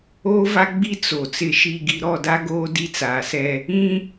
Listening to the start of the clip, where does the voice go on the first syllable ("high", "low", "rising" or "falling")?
high